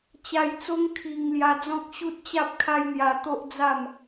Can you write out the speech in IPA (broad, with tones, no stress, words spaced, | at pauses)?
t͡ɕa˧jt͡so˦ŋ kʰi˧ŋ lja˧d͡zɔ̃˦k̚ ɕu˦t̚t͡ɕa˦p̚kʰa˦jn̪ja˧ t̪o˦ʔd͡za˥˧m